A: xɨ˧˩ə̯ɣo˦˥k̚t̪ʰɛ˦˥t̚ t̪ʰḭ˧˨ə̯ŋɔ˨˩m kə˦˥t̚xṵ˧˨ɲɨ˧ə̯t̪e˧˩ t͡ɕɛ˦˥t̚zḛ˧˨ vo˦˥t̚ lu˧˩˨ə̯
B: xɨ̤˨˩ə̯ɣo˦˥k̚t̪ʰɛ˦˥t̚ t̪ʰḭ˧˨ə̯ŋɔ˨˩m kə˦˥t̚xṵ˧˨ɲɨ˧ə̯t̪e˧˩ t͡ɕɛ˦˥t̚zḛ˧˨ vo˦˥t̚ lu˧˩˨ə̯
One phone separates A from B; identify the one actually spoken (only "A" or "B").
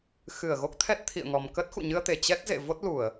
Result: A